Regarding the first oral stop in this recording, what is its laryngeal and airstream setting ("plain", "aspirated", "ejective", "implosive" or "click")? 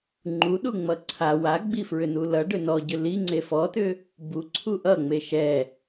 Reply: click